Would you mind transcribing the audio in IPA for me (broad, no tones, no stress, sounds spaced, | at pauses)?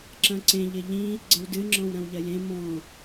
ǁ ɐ̃ ǀ ẽ ʎ ɪ ʎ ĩ | ɡ͡ǀ ɐ w d ɨ ŋ͡ǁ ɔ̃ w ɾ ɐ̃ w ʎ ɐ j ẽ m ɔ̃